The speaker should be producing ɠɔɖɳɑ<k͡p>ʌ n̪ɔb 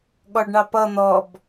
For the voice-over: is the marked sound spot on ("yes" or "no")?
no